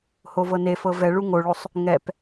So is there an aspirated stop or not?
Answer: no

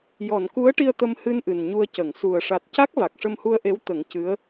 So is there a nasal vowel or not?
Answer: no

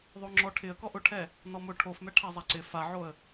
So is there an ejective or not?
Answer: no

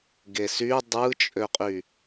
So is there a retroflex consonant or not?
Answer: no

